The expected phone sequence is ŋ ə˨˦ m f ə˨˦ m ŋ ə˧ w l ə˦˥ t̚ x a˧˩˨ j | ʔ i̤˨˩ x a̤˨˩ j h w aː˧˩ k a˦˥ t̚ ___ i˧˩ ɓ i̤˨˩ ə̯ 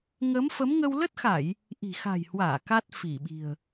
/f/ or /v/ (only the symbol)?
f